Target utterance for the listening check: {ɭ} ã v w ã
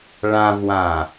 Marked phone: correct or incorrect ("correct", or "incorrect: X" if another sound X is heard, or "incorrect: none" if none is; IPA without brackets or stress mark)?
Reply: correct